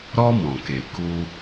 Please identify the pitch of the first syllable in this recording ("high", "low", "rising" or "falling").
high